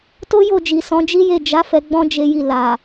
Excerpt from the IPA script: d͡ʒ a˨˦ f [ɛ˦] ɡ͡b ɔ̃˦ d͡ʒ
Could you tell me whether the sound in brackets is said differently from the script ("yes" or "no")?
yes